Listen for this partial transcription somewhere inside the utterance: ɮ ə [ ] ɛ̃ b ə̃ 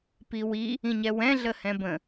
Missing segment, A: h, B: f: A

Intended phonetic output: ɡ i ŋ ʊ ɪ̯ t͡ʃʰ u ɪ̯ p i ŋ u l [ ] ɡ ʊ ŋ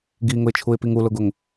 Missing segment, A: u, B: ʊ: B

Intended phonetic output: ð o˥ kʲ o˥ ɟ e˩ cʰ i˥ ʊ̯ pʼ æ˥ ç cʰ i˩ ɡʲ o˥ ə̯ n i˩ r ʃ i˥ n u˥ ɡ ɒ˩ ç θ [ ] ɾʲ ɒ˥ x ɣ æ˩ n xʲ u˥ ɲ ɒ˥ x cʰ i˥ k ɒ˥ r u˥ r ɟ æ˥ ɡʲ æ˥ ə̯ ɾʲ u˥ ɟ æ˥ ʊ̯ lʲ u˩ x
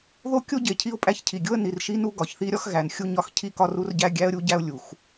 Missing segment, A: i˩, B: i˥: B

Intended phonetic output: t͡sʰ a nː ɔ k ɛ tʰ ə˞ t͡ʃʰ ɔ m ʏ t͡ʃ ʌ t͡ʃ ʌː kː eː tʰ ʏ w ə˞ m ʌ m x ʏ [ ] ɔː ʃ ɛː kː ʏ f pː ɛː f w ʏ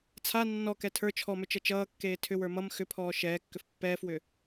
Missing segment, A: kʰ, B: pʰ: B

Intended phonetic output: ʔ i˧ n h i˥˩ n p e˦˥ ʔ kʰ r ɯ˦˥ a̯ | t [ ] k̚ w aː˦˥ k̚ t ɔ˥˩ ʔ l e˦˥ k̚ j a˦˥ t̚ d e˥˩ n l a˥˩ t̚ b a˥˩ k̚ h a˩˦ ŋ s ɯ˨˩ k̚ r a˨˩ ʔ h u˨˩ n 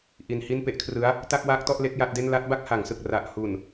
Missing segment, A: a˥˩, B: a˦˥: A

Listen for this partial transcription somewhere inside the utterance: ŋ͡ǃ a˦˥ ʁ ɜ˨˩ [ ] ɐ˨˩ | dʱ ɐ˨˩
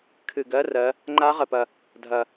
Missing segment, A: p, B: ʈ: A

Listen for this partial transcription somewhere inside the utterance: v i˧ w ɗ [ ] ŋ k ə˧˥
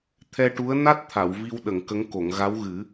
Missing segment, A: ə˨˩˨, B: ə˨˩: A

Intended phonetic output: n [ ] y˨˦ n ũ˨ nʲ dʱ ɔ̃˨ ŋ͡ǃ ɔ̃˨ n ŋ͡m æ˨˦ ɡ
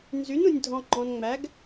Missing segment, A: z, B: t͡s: A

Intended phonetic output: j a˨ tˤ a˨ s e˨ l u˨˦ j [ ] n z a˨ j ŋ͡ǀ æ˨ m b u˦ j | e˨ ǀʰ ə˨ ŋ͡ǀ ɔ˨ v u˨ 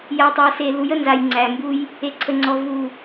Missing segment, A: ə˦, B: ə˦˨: B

